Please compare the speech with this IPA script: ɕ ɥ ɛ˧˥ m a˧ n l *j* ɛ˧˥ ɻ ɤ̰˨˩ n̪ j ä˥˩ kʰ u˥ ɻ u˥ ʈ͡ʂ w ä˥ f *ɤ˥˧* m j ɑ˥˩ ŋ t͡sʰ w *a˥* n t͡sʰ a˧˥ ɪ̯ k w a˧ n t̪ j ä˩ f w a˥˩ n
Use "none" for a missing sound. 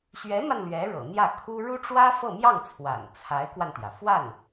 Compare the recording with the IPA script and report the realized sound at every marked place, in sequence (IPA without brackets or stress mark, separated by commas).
ɥ, ɤ˥˧, a̰˨˩